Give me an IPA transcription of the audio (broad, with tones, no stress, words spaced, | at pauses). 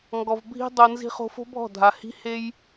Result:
ŋɡɔ˨vbʱi̤˦ dˤo˧nzi̤˦ χo̤˧fo̤˦bʱɔ̤˦˨dʱa˨ hi̤˦he˦j